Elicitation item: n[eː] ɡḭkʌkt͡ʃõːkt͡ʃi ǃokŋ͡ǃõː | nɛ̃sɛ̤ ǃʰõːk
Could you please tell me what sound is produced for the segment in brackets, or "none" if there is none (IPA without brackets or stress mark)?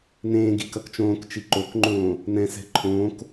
ẽː